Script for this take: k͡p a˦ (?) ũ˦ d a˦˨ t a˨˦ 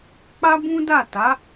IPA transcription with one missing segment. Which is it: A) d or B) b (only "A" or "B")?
B